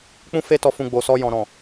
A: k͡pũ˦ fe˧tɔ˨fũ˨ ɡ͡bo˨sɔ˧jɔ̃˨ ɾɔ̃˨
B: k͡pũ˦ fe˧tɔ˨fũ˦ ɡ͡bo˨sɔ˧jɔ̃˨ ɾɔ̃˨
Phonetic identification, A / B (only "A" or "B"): A